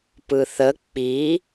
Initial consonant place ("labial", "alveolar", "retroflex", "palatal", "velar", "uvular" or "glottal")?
labial